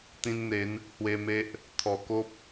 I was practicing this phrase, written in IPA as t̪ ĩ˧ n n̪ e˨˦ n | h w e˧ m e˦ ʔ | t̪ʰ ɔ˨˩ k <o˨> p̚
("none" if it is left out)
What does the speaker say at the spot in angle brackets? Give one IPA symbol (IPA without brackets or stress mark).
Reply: o˦